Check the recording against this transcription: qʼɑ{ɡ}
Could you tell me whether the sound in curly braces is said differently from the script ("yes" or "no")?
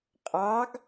no